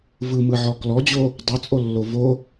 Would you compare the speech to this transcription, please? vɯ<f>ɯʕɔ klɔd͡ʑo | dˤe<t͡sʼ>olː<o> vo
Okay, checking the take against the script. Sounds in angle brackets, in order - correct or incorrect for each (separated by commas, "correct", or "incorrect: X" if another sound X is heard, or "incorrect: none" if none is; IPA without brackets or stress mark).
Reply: incorrect: m, correct, correct